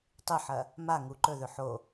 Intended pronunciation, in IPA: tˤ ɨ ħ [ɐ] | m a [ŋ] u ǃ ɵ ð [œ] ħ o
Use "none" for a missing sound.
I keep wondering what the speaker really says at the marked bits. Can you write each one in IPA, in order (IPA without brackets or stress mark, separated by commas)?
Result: ɐ, ŋ, ɵ